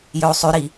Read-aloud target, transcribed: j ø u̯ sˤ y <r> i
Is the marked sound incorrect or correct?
incorrect